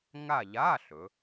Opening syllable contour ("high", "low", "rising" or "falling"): falling